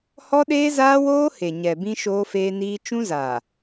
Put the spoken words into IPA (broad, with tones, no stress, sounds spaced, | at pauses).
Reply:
h ɔ˦ ɗ eː˦ z aː˦ w oː˦ h e˨ ɲ ɛ˨ b ĩ˦ ʃ oː˦ f eː˦ n iː˦ t͡ʃ ũ˦ z a˨